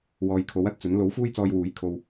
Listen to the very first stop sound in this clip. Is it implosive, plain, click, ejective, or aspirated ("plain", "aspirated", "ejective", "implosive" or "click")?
aspirated